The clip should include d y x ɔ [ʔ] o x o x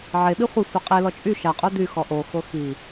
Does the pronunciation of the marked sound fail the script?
no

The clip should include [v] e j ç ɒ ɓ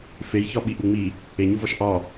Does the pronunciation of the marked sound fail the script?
yes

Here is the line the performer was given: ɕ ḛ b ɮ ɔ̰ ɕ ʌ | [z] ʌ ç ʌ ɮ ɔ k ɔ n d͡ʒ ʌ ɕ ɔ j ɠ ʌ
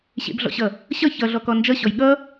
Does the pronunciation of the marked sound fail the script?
yes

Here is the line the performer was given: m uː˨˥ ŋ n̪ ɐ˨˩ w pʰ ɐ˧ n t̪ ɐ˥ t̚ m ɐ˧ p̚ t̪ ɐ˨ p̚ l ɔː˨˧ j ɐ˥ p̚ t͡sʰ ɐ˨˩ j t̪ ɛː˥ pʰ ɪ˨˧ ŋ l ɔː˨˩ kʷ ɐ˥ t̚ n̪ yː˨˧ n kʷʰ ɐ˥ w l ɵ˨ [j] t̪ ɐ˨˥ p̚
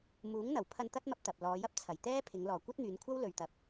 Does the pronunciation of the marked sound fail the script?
yes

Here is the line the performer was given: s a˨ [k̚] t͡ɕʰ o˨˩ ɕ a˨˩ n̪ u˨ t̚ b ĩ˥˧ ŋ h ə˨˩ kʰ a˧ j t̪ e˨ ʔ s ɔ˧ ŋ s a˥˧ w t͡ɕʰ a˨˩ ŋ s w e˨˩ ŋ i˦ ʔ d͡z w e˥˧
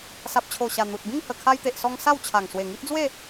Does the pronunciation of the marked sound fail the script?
yes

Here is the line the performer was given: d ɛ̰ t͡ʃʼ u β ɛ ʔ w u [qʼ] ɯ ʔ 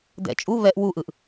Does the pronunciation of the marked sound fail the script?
yes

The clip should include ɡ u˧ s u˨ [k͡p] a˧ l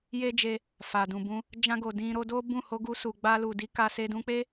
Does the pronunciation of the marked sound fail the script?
yes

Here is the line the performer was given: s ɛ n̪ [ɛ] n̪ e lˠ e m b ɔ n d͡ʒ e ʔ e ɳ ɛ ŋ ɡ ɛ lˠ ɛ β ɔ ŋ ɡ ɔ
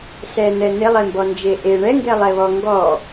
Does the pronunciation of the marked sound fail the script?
no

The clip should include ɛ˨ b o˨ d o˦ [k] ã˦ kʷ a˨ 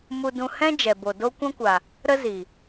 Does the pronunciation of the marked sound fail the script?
yes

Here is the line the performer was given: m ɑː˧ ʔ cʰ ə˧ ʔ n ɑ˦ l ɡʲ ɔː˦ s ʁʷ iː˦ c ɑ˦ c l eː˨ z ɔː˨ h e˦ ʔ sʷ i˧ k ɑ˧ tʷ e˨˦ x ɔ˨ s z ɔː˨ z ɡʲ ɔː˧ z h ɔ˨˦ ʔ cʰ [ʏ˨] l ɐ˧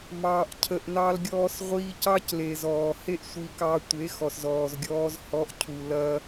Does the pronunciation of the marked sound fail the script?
yes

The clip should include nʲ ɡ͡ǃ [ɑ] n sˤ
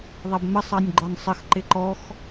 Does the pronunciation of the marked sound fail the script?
yes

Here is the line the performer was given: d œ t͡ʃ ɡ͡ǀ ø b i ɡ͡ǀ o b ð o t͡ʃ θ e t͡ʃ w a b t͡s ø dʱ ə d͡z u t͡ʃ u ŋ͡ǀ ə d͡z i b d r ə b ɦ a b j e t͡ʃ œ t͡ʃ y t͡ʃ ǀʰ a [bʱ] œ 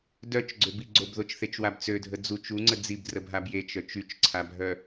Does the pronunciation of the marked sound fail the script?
no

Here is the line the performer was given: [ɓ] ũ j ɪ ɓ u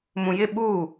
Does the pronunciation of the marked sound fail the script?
yes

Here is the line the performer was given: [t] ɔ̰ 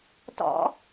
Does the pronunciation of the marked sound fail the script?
no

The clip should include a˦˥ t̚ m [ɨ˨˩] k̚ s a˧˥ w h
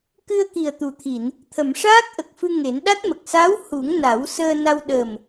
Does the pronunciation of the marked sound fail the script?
yes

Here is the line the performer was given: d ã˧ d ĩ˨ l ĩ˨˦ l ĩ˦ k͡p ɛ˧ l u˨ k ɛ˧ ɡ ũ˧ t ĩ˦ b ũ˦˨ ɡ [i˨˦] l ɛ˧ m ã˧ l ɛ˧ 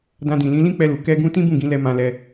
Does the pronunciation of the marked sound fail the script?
yes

